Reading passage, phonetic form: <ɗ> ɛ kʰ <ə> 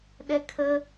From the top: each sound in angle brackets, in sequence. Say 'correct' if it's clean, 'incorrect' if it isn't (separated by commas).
correct, correct